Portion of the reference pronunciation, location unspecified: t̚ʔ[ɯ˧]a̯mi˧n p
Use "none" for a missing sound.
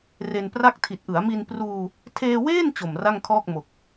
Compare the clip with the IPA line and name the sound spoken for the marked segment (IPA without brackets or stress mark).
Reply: ɯ˩˦